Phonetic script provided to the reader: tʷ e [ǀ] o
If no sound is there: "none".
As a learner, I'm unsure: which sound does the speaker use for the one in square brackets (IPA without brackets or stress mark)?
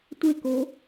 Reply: k